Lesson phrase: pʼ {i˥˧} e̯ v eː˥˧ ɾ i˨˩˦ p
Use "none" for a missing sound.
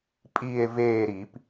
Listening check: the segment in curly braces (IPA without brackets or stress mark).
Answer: i˥˧